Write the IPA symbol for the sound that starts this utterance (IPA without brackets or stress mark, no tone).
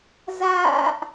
z